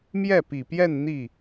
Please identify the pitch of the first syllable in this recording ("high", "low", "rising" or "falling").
falling